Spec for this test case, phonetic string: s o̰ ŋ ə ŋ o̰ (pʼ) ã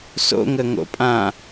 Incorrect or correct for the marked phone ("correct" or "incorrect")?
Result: correct